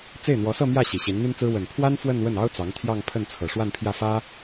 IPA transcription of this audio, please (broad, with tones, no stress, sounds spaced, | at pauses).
t͡s e˥˩ ɪ̯ n̪ w ɔ˧˥ s ɤ˥˧ m j ä˥˩ ɕ i˨˩ ɕ i˧˥ n n̪ y˥ n t͡s ɹ̩˥ w ə˨˩ n pʰ w a˥ n f w ə˥˧ n w ə˥˩ n ɑ˥ ʊ̯ t͡s ɑ˧˥ ŋ t̪ʰ j ɑ˥˧ ŋ pʰ ə˥˩ n t͡sʰ ɤ˨˩ ʂ w a˥˧ n pʰ j ä˥˩ f ä˥